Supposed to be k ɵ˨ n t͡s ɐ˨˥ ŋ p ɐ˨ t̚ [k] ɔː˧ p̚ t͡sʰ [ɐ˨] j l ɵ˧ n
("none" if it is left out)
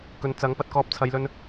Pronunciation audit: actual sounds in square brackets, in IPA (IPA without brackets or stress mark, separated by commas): k, ɐ˨